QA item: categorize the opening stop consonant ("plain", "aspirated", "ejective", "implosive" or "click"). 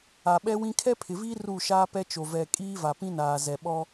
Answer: implosive